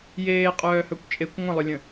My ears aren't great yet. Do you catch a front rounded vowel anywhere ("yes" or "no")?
yes